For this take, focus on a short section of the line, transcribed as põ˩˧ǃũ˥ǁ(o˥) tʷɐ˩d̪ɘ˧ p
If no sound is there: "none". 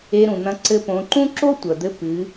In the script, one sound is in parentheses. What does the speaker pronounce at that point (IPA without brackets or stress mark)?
o˥